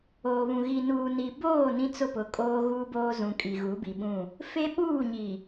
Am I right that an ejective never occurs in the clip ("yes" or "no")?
no